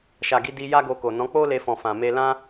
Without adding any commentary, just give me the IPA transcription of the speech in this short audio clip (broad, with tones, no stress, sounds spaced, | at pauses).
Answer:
ʃ a˨ ɡ i˧ d i˧ j a˦ ɡ o˧ k o˨ n ɔ̃˨˦ k͡p o˦ l e˧ f ɔ̃˨ f ã˨ m e˧ l ã˦